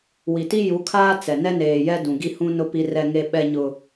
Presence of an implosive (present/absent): present